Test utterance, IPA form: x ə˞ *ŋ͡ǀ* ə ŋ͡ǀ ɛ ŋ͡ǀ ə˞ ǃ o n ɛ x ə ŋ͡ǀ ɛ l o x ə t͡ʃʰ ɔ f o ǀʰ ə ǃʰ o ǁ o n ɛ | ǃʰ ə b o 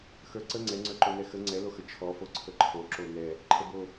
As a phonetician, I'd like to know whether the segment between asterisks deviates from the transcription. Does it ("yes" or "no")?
yes